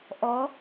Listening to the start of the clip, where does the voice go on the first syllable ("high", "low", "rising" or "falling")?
rising